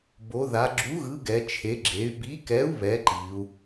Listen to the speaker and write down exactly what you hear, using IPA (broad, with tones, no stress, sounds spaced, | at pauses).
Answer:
b o˩˧ ð a˩˧ ɡ͡ǁ u˨˥ ɣ ɯ˨˥ ɡ ɛ˩˧ t͡ʃʰ e˨˥ ɡ͡ǁ e˨˥ y̯ b i˨˥ k ɛ˨˥ u̯ β ɛ˨˥ ǃ i˩˧ u̯